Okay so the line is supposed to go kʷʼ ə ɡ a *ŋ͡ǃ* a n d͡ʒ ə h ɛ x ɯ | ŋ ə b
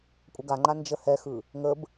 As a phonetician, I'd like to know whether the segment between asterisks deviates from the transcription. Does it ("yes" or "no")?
no